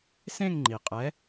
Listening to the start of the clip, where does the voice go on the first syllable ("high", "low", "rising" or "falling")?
falling